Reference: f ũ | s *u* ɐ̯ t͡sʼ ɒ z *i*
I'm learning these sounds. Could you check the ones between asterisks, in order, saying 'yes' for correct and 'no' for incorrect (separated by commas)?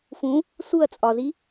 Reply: yes, yes